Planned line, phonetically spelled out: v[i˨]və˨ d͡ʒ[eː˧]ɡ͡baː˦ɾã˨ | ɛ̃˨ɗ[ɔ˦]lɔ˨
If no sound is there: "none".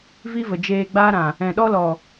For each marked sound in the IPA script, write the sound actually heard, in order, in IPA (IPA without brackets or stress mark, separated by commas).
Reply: i˦, eː˧, ɔ˦